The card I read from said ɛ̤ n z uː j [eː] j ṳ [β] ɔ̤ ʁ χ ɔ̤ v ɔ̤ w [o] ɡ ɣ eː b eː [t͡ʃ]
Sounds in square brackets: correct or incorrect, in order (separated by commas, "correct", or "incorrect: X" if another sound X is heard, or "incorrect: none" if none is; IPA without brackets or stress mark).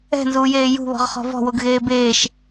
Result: correct, correct, correct, incorrect: ʃ